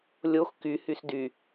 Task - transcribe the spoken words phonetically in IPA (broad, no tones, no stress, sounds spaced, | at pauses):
lʲ o x k y h y s d y